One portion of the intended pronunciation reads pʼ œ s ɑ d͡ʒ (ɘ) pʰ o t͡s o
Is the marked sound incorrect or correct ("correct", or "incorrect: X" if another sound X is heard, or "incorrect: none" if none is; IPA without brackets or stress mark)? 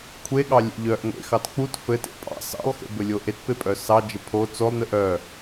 correct